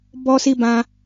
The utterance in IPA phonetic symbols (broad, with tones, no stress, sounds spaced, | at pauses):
b ɔ˦ s i˦ b ã˦